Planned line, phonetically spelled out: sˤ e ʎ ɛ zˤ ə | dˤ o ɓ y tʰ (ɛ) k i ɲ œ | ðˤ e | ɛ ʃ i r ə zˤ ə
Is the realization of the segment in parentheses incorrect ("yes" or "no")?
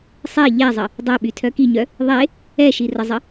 yes